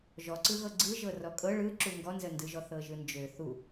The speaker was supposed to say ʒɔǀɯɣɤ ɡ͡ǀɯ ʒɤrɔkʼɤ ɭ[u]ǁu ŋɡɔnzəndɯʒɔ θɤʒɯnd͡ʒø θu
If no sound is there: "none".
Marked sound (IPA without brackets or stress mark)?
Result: ɯ